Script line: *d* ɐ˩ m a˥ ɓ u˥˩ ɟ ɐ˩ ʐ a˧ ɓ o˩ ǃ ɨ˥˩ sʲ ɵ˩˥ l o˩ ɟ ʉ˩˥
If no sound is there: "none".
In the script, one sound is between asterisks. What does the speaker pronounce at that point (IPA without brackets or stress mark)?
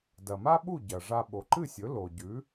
d